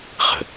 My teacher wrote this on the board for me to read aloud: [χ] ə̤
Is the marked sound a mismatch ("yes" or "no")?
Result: no